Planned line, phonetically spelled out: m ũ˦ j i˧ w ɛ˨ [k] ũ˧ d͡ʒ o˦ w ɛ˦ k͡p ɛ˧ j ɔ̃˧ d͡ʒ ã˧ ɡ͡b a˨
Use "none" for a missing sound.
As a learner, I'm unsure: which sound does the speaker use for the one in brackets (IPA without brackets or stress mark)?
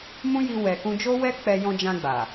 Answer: k